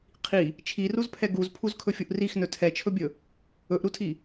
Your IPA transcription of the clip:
qʰ i | t͡ʃʰ i r u z pʰ ɛ ɡ u z pʰ u z kʰ ɵ fʲ u ʔ r i x n ɵ tʰ ɛ t͡ʃʰ ɵ bʲ ɵ | ɵ ʔ ɾ u tʰ i

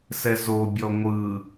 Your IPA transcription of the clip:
s ɛ z o bʲ ɔ ŋʷ ɯ

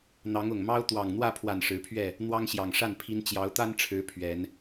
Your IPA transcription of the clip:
n̪ ɑ˨˦ ŋ ʊ˨˩ ŋ m ɑ˦ ʊ̯ t̪ w ɑ˨˩ ŋ n̪ w ä˥˨ pʰ w a˨˩ n ʂ ɻ̩˨˦ pʰ ɥ ɛ˥˨ | n̪ w ɑ˦ ŋ ɕ j ɑ˨˩ ŋ ʂ a˥˨ n pʰ i˦ n t͡ɕ j ɑ˨˦ ʊ̯ t̪ a˦ n ʈ͡ʂʰ ɻ̩˨˦ pʰ ɥ ɛ˨˦ n

